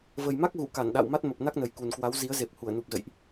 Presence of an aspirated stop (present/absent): absent